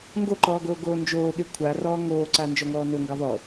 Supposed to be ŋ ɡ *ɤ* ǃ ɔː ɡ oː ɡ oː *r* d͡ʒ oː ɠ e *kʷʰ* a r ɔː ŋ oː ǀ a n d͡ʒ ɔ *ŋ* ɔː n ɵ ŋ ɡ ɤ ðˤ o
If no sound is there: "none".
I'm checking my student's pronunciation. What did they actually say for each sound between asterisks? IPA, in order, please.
o, n, kʷʰ, ŋ

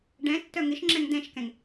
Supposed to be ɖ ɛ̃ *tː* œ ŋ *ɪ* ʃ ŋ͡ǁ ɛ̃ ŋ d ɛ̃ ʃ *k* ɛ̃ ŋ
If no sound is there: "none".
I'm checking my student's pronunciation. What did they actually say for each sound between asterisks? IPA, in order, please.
tː, ɪ, k

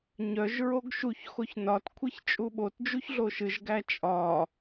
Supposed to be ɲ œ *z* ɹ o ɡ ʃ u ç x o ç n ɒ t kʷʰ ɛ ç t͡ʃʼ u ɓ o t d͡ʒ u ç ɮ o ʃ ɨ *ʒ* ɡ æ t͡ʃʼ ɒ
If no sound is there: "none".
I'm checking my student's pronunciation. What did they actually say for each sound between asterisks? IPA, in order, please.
ʒ, ʒ

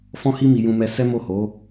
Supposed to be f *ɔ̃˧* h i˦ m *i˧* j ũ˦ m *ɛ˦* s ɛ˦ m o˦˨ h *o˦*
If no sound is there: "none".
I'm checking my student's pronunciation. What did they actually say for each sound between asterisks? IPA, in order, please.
ɔ̃˦, i˧, ɛ˦, o˨˦

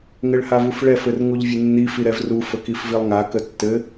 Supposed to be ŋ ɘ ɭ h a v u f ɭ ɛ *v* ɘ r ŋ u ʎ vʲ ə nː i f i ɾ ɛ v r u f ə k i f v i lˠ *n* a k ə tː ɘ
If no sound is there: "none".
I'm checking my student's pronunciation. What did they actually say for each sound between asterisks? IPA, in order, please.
f, ŋ

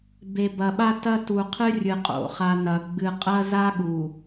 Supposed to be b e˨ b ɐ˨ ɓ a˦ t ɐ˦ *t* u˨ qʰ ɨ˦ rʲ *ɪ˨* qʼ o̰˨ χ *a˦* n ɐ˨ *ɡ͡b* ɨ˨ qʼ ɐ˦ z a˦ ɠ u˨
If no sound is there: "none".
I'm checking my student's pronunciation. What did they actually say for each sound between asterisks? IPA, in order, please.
t, ɨ˨, a˨, ɡ͡b

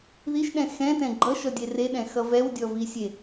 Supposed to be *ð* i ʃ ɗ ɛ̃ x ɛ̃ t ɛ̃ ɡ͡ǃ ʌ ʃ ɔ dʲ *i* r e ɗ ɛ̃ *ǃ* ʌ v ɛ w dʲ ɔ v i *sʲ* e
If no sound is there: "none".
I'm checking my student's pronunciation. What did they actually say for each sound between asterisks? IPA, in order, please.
ð, e, x, sʲ

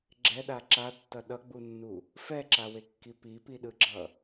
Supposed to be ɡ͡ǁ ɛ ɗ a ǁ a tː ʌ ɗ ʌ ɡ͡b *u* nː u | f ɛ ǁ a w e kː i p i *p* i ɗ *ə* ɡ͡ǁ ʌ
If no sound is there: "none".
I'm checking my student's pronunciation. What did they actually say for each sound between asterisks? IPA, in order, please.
u, p, ɯ

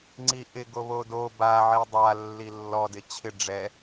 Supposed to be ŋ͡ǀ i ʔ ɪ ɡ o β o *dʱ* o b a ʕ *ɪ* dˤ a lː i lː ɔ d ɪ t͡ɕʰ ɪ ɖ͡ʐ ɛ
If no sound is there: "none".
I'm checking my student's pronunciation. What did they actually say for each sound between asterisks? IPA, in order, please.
d, i

